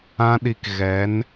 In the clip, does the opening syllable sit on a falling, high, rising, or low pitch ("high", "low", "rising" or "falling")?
high